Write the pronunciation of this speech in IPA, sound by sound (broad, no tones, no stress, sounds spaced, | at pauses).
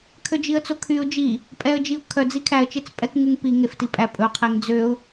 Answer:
kʰ ø d͡ʒ i ə̯ t͡s o kʰ y ʊ̯ d͡ʒ i | pʼ ɛ ə̯ d͡ʒ i ʊ̯ kʰ œ d͡z i kʰ æ ə̯ t͡ʃ e t͡s pʼ ɛ k ŋ ʉ ŋ p i ŋ e f t i pʼ æ pʼ ɵ qʰ e ŋ d͡z ø ʊ̯